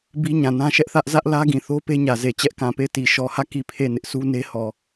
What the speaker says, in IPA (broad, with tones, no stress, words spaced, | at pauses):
bi˦ɲã˨nã˦ ʃɛ˦ʔθä˦ʔ zä˦ʔlä˦ɡĩ˨ θo˦ pe˦ɲä˨ze˨ t͡ɕɛ˦ʔkã˨pe˦˨ɪ̯ti˨ ʃɔ˨hä˦˨ ki˦˨pʰe˦˨ nɪ˦ʔsu˦ne˦ hɔ˨